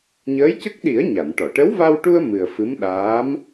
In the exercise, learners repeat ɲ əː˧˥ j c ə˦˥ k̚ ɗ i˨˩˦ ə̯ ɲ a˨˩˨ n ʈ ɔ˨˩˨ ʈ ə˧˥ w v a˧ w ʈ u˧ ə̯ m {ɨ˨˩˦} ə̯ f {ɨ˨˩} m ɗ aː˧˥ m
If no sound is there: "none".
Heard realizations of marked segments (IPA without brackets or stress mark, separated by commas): ɨ˨˩, ɨ˧˥